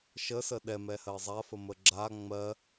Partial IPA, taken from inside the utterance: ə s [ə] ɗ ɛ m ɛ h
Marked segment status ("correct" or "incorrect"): correct